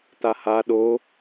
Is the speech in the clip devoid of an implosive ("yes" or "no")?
no